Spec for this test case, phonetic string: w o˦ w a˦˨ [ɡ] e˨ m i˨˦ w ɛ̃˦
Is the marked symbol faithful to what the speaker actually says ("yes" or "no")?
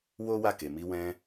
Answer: no